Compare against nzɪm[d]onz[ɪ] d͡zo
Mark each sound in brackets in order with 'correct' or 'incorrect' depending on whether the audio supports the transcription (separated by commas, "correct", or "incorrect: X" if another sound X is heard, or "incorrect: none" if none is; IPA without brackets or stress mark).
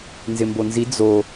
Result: incorrect: b, incorrect: i